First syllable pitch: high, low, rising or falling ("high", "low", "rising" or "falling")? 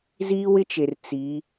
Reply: high